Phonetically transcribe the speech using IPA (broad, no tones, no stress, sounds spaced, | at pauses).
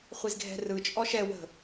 χʷ i z ɡʱ ɛ̤ r ɯ t͡ʃʼ ɔ ʃ ɛ w ə̤